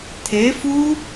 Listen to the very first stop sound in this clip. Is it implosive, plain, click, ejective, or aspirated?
aspirated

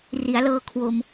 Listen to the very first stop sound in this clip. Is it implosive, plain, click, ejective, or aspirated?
aspirated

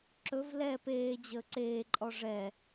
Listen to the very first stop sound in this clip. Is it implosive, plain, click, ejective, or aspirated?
click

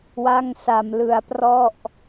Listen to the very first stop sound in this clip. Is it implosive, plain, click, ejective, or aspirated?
plain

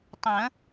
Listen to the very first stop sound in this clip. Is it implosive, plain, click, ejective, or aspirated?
plain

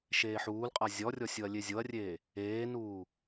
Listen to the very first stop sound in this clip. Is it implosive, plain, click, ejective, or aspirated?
ejective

